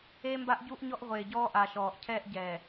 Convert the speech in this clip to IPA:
eː˦ m b a˦ ʔ ɟ u˦ ʔ ɲ ɔ˦ ʔ ʁʷ eː˨ ɟ ɔː˦ ʔ a˨ ʃ ɔː˨ ʔ cʰ ɛː˦ ʔ ɟ ɛː˨

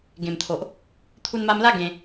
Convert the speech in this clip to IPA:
ɡ ẽ˨˩ m t̪ʰ o˨ ʔ | t̪ʰ u˧ n m a˧ m l a˦ ɡ ẽ˧

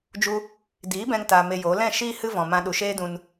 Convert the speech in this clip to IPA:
d͡ʒ u˧ | d iː˨˦ b ɛ̃˧ ŋ t a˧ m e˧ j o˨˦ l ɛ̃˦˨ ʃ iː˦ h ɨ˦ v ɔ̃˨ m ã˧ ɗ u˨ ʃ eː˦ d ũ˧ n

